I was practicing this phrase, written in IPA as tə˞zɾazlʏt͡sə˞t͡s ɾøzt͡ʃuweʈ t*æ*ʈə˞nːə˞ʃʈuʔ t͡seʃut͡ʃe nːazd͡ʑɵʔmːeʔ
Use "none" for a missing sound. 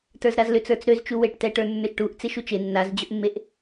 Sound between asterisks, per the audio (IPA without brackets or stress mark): ɛ